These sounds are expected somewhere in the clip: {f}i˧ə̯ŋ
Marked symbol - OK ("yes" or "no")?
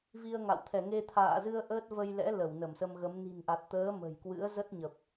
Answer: no